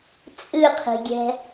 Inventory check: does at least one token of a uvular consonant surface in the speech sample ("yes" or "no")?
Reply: yes